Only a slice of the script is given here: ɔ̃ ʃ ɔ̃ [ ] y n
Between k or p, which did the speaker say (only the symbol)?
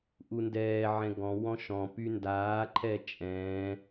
p